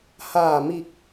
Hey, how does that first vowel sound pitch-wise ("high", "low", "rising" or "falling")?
low